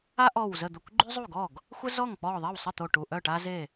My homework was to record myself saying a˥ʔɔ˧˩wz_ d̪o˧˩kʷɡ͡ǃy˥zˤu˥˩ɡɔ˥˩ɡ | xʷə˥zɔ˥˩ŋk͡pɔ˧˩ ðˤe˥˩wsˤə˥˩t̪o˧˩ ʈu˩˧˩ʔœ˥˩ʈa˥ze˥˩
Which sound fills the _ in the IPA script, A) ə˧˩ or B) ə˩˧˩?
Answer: A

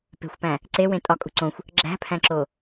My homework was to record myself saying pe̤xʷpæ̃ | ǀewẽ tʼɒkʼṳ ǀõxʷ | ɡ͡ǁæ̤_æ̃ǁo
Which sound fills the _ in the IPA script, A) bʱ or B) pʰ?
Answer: B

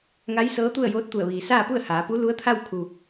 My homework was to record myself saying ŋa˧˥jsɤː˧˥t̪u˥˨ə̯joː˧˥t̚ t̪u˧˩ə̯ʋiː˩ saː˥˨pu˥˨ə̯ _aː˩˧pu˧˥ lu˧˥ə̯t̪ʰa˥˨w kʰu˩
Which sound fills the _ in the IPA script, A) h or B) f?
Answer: A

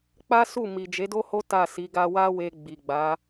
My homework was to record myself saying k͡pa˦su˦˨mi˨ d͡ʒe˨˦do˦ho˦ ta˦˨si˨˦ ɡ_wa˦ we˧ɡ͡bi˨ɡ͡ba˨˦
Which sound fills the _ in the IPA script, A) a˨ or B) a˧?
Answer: B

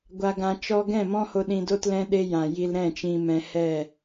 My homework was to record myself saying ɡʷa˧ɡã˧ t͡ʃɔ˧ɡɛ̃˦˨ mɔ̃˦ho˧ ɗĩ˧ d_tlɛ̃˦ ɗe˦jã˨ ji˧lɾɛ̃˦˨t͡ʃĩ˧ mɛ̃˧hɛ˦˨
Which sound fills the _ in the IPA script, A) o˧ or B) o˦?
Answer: B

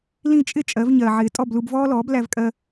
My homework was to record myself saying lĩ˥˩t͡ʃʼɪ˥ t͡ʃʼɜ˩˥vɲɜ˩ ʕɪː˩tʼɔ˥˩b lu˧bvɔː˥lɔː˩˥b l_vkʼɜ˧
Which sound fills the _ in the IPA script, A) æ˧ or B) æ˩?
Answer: A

